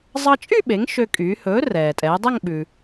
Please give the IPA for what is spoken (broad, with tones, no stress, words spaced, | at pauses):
zˤɑ˧t͡ʃʼy˥˧ɓe˩˧ŋ ʃø˧kʼyː˩˧ hɵː˨˥rɛː˩ tʼɛː˩˧dˤɛ˥˧ŋɓʉ˩